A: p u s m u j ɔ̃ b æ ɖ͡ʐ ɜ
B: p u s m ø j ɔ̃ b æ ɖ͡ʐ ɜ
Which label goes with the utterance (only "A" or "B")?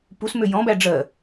B